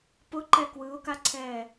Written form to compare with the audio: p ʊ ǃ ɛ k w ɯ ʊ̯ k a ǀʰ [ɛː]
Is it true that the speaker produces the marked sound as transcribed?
yes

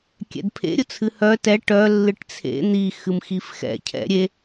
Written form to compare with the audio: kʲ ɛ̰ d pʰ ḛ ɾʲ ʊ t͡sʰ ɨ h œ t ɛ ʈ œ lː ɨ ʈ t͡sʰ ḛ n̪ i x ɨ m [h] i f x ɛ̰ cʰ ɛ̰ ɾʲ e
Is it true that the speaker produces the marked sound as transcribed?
no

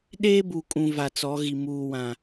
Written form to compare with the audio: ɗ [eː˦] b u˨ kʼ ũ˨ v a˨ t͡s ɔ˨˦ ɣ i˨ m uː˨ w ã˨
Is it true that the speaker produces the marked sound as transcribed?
yes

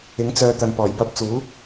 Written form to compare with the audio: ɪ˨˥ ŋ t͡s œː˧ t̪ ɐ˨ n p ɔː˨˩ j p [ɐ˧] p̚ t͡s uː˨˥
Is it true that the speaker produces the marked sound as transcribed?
yes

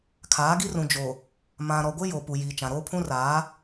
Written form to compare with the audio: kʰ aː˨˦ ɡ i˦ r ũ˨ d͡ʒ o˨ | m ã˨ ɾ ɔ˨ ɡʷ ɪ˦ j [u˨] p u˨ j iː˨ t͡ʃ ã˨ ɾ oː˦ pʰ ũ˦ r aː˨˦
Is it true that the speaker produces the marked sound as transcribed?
no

